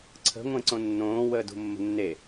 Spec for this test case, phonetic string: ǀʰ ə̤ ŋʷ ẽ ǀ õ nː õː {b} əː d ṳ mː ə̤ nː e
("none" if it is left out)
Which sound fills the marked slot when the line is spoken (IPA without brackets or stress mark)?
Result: w